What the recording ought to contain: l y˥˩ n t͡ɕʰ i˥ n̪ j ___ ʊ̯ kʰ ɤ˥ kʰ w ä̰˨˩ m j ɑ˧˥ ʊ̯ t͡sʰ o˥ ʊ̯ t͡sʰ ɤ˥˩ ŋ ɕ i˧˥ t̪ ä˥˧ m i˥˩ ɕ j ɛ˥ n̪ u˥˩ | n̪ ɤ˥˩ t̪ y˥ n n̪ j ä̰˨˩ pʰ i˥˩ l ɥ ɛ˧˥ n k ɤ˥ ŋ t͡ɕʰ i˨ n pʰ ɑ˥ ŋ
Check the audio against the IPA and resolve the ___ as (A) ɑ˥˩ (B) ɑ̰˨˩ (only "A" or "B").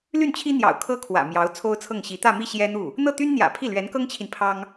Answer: B